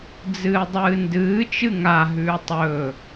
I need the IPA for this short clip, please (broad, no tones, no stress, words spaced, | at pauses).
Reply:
d͡zɨːdˤɨːndɨː t͡ʃɨŋa ɦʉːtˤɵː